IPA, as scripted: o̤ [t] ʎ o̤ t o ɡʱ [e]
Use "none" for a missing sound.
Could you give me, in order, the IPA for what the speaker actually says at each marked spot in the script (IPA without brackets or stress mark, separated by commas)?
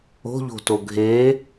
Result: none, e